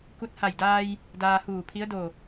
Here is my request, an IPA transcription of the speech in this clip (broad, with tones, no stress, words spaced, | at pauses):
ku˧t̚ha˧˩jdaː˧j | daː˧huː˧˩pʰi˧˥ə̯ do˧˩